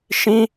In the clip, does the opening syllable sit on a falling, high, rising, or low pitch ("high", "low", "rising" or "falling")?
high